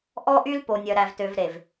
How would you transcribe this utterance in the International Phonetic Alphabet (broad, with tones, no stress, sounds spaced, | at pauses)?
ʔ ɔ˦ ʔ y˦ l p o˨ nʲ œ˨ ɾ æ˨ v t ø˨ v ɾ e˨ v